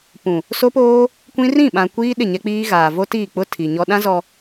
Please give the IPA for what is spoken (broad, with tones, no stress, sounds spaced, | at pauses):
p ũ˨ | s o˦ p oː˦ | kʷ ĩ˦ r ĩ˦˨ ɓ ã˨ kʷ iː˦ ɗ ɪ˦˨ ɲ ɛ˦ k͡p iː˦ ɣ aː˨ v o˦ t iː˦˨ k͡p ʊ˦ tʰ i˨ ɲ ɔ˦ ɗ ã˦ z ɔ˨